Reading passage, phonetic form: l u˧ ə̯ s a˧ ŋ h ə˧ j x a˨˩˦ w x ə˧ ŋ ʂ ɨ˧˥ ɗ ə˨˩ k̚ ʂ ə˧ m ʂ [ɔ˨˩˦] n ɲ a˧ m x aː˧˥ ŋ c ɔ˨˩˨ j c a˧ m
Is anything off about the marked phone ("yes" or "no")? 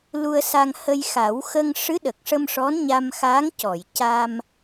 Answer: yes